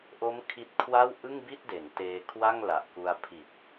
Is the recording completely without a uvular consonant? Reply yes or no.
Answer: yes